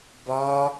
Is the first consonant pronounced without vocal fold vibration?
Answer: no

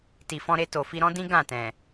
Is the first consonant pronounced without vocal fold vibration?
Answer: yes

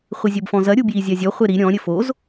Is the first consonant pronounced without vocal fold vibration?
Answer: yes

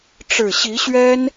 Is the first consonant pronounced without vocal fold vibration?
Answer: yes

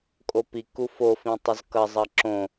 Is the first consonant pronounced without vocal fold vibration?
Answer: yes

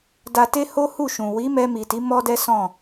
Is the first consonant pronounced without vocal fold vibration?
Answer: no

